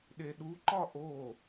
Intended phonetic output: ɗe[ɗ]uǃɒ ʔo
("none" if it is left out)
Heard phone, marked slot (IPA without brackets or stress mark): ɗ